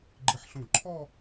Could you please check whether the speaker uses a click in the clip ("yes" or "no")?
yes